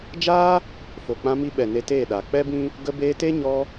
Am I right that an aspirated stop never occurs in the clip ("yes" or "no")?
yes